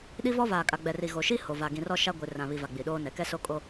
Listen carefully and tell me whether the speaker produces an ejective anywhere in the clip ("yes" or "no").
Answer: yes